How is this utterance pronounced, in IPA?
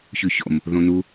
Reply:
ç ʉ ç o̰ m | ð õ n u

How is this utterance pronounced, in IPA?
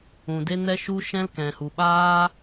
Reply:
ũ˨ d e˦ n ɛ˦ ʃ u˦ ʃ ɛ̃˦ l k ɛ̃˨ h u˨ ɓ aː˦

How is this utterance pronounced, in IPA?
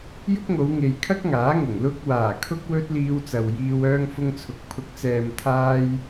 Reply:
j ʊ˥ k̚ ŋ o˨˧ w ŋ e˨ j kʰ ɐ˥ k̚ ŋ aː˨˥ ŋ ʊ˨˩ ŋ l ʊ˧ k̚ w aː˨˩ kʰ ʊ˧ k̚ w ɵ˥ t̚ l iː˧ w t͡s ɐ˨ w j iː˧ w œː˧ ŋ f ʊ˧ ŋ t͡sʰ ʊ˨ k̚ pʰ ʊ˨˥ k̚ t͡s ɛː˨ m t̪ʰ aː˧ j

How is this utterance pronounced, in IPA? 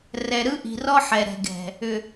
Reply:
r ɛ˨ ɾ ɯ˦ ʔ i̤˨ r ɔ˦ ħ ɛ˨ ɾ ɛ̤˨ ɡ ɛ̤˨ | ʏ˨

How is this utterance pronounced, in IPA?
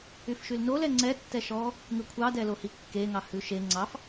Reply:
y f ʃ y l n o l ɛ ŋ͡ǀ ɛ tː ɛ ʃ ɔ | ŋ ʉ kʷʰ ɑ d ɛ l o h i kː e ŋ ɑ h ʉ ʃ e ŋ͡ǀ ɑ f

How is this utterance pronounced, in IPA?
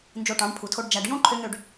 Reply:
n d͡ʒ o˧ ʈ ɑ̃˨˦ ɖ pʰ u˨ tʰ o˧ ɖ d͡ʒ æ˨ ɖ j õ˦ ǃʰ ø˧ ŋ ø˧ ɖ

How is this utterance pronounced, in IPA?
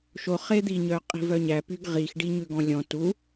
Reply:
ʃ o χ e d̪ i ɲ œ qʼ i̤ v œ ɲ æ p y ɡ ʁ i x ɖ i ɲ ʉ ɡ ɔ̃ lʲ ɔ̃ t u

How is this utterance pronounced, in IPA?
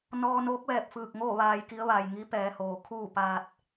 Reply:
n ɔː˧ n oː˧˥ k̚ ʋ ɛː˧˩ p̚ f ɯː˧˩ k̚ ŋ o˥˨ ʋ aː˧ j k i˧˥ ə̯ ʋ a˩ j ŋ i˧˥ p ɛː˩˧ h oː˩ kʰ uː˥˨ p aː˧ t̚

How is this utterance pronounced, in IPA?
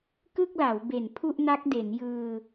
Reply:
k ɯ˥˩ k̚ l a˩˦ w b e˨˩ n pʰ u˥˩ ʔ n a˦˥ k̚ d e˩˦ n j ɯː˧

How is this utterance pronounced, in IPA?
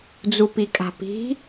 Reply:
d͡z u p i kʼ a̤ p i̤

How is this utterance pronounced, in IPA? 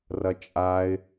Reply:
r ɐ t͡ʃʼ a ɪ̯

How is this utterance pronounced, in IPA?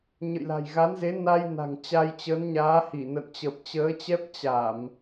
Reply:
ɲ ə̰˧˨ j l a̤˨˩ j ɣ a˨˦ n z e˨˦ n a˧ j n a̤˨˩ ŋ t͡ɕ a˧ j t͡ɕ ə˨˦ n ɲ aː˨˦ h i˧˩ n ə̰˧˨ n t͡ɕ ə˨˩ p̚ t͡ɕ əː˨˦ t͡ɕ ɛ˦˥ p̚ t͡ɕ a˧˩˨ m

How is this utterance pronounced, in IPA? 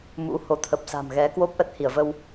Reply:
m ṵ˧˥ h o˨˦ t̪ʰ ə˨˩ p̚ s a̤˨˩ m ɣ ɛ˨˦ k w o˦˥ p̚ ʔ ə˦˥ t̚ h i˧˩ ə̯ v ə˧ w

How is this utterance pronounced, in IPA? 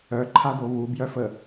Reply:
œ ǃʰ a d̪ o β u b j œ f ə

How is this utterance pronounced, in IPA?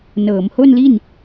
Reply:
n ɤː˩˦ m h o˥˩ n l i˥˩ n

